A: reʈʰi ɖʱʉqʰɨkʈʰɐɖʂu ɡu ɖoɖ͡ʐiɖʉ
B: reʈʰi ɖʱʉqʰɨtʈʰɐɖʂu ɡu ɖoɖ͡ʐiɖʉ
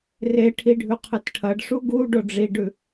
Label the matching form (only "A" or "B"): B